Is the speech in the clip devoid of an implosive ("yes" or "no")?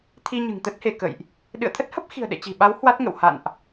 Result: no